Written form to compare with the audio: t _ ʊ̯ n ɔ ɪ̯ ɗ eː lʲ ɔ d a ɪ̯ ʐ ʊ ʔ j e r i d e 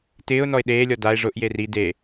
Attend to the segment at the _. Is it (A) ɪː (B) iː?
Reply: A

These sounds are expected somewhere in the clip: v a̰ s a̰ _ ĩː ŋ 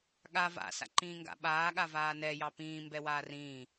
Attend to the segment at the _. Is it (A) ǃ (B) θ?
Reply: A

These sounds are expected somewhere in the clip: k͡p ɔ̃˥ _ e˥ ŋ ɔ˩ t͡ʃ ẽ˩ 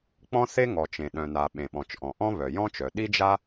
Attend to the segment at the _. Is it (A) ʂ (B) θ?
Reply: B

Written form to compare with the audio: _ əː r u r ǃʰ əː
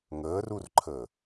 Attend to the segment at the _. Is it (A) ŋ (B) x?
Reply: A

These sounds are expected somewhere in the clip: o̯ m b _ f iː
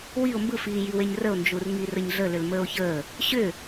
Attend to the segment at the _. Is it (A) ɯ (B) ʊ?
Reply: A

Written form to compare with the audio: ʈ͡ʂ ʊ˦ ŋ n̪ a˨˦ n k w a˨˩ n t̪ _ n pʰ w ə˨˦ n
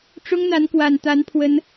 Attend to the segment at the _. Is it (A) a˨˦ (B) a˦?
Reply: A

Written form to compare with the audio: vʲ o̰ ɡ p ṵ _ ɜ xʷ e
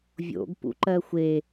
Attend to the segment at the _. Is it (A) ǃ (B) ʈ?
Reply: A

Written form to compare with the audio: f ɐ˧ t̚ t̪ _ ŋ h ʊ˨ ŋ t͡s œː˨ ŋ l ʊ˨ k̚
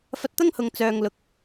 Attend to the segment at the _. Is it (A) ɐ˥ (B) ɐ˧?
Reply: A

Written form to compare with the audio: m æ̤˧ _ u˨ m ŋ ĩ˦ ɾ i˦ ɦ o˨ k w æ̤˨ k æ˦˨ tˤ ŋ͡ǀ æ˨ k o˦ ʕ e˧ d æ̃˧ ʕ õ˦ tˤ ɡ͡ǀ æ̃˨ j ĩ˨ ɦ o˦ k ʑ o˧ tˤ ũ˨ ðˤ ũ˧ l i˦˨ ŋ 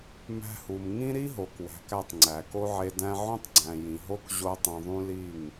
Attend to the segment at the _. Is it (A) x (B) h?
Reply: B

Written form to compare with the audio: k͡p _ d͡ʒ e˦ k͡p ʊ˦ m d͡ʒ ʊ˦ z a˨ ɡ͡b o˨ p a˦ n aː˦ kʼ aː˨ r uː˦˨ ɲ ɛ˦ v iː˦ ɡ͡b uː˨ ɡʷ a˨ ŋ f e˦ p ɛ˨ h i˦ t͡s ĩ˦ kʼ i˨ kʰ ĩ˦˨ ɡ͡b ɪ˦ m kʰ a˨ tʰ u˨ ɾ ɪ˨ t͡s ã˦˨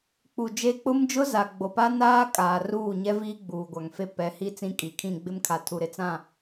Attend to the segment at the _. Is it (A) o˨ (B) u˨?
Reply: B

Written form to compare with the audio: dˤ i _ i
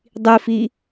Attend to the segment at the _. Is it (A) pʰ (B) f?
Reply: B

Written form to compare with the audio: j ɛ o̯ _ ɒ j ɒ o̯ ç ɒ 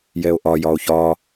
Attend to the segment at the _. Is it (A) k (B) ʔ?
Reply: B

